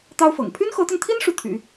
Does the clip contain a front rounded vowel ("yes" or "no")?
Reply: yes